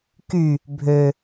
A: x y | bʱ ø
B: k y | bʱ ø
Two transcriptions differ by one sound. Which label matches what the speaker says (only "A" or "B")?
B